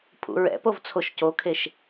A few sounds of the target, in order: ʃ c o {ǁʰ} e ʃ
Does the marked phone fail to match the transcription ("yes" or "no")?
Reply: yes